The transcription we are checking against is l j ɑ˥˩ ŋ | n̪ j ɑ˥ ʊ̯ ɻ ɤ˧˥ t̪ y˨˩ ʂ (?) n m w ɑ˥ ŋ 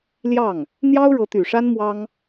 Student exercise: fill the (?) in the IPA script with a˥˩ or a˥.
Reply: a˥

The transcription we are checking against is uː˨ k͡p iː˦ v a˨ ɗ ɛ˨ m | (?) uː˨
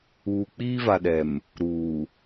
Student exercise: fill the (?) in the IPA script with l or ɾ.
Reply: ɾ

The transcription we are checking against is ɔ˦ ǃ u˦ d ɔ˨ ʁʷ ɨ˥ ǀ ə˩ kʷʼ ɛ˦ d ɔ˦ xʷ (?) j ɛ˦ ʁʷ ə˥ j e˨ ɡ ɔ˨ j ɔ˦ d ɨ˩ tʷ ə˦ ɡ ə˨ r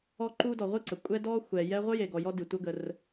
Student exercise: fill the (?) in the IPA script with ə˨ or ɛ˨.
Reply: ɛ˨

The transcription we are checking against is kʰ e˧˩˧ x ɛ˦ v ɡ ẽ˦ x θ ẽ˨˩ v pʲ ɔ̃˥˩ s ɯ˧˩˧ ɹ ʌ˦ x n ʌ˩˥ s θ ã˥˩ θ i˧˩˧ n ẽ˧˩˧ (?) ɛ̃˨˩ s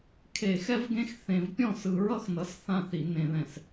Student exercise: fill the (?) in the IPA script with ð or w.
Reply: ð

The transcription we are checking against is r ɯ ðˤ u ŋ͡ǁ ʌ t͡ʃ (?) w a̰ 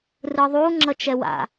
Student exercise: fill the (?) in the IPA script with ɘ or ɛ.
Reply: ɛ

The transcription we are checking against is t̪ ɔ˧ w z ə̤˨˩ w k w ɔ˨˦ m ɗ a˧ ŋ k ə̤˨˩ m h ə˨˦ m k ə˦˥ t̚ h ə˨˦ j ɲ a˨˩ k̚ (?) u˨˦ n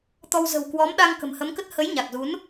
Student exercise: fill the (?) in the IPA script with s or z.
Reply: z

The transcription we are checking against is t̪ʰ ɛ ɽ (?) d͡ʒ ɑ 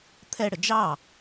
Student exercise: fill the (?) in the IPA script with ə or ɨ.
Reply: ə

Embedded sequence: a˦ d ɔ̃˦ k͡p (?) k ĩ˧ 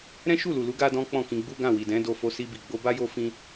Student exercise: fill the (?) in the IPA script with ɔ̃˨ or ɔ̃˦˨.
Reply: ɔ̃˦˨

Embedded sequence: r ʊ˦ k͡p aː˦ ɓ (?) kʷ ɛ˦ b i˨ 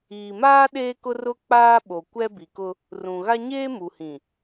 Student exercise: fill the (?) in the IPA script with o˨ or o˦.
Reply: o˨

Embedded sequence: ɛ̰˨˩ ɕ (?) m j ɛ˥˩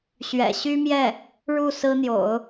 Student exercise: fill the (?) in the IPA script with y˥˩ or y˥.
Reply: y˥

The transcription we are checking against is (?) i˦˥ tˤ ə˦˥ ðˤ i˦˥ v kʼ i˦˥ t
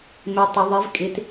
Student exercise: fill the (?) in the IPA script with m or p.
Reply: m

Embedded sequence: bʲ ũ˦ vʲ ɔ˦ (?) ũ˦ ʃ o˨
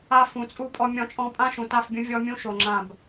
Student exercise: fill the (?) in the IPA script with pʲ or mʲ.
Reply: mʲ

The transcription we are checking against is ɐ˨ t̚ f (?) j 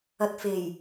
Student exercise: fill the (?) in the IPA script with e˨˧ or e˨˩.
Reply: e˨˩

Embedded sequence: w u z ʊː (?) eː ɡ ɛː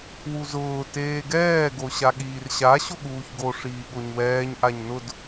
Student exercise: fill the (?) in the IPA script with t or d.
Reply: t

